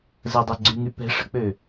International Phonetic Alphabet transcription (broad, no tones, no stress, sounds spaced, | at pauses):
z ə dˤ ɛ ɡ͡ǀ y ŋ y p ɛ̤ ʂ ə̤ k͡p ø